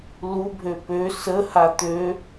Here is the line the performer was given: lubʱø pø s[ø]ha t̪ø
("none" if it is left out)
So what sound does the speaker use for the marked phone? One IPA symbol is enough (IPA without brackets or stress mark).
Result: ə